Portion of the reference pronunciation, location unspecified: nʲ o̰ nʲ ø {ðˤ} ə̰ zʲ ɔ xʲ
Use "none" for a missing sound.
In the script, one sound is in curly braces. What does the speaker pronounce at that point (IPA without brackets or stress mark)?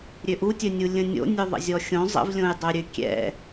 ðˤ